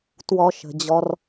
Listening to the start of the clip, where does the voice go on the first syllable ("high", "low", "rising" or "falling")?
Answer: high